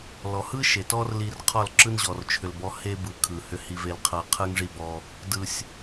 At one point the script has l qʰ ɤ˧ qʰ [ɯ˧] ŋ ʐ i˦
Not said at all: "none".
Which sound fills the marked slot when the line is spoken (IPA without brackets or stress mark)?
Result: ɯ˦